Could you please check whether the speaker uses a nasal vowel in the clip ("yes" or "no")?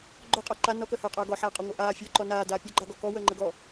no